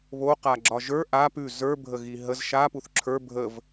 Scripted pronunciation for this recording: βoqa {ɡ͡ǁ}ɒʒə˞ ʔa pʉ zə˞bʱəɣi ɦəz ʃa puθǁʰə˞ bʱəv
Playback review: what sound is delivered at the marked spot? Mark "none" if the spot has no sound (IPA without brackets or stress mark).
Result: ɡ͡ǁ